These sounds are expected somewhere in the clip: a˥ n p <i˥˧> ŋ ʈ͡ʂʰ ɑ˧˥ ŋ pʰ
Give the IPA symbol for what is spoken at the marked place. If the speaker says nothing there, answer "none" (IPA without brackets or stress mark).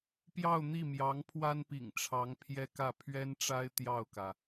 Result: ḭ˨˩